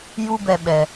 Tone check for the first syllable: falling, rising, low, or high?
high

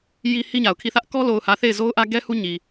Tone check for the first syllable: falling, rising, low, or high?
high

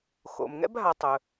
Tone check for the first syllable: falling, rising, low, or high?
low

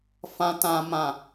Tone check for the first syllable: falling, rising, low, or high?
high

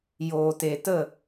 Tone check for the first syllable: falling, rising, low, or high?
low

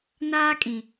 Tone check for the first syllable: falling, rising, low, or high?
high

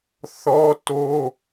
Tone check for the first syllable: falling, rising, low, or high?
high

